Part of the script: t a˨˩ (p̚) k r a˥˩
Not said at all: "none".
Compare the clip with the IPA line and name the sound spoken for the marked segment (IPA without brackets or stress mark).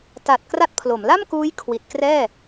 t̚